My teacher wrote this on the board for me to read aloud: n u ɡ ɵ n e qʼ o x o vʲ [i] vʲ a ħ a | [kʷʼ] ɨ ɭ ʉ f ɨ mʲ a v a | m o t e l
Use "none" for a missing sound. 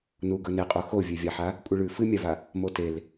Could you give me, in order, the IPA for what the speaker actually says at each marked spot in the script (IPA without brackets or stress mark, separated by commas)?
e, kʷʼ